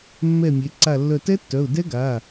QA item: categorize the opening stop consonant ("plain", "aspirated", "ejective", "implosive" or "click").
click